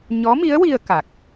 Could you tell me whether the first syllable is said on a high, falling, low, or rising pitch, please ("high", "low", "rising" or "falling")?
rising